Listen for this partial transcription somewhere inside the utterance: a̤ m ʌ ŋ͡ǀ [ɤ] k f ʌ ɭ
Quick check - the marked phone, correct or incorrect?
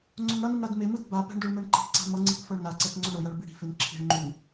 incorrect